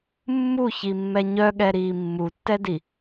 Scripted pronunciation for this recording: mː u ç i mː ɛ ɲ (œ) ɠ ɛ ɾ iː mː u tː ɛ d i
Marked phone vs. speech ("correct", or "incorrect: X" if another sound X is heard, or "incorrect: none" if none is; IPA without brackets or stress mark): correct